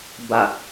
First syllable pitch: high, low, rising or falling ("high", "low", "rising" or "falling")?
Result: low